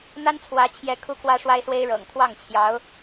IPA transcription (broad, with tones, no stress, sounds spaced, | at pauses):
n̪ a˥ n t͡sʰ w ä˧˥ t͡ɕʰ j ɛ˧˥ kʰ u˥ kʰ w ä˥ ʂ w a˥ ɪ̯ s w e˥ ɪ̯ ɻ ɤ̰˨˩ ŋ t̪ʰ w ɑ˥˩ ŋ t͡ɕʰ j ɑ˧˥ ʊ̯